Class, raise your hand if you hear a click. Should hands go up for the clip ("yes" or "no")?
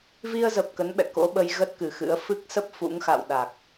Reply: no